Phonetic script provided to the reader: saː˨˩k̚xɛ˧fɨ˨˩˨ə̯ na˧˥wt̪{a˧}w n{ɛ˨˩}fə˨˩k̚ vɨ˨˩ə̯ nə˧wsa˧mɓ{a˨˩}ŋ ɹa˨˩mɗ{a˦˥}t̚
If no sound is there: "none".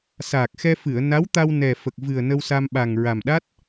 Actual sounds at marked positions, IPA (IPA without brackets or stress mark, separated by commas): a˧, ɛ˨˩, a˨˩, a˦˥